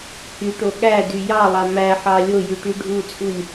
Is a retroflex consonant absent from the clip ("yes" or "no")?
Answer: no